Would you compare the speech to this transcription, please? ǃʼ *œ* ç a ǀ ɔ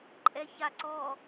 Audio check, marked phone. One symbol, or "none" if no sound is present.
ɛ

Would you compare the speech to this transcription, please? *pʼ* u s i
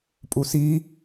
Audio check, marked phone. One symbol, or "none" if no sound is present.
pʼ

